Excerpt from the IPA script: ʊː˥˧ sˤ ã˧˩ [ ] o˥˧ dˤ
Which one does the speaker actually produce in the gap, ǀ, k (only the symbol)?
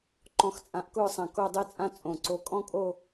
k